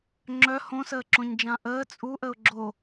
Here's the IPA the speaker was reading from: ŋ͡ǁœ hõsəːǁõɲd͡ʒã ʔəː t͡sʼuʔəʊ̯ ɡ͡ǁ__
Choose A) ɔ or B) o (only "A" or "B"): B